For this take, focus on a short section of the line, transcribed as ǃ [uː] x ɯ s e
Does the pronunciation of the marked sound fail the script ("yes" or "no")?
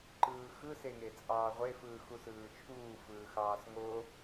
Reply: yes